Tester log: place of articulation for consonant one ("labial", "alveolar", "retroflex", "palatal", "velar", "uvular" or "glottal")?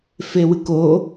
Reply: labial